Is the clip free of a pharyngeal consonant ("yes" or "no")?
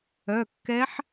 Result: no